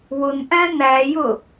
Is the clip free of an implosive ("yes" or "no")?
yes